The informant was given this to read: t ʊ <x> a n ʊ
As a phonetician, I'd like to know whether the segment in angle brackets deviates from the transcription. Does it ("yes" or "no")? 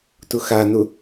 no